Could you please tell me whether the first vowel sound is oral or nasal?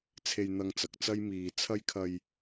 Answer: oral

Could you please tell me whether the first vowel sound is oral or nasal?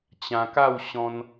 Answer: nasal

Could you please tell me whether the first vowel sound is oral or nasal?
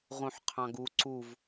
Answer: nasal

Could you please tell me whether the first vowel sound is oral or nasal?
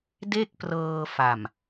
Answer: oral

